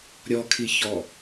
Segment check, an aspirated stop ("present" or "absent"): present